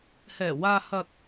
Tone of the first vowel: low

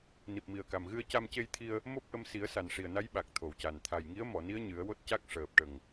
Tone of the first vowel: low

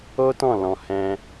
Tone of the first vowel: high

